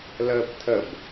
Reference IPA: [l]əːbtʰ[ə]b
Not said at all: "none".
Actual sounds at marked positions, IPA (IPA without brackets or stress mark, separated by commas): l, ə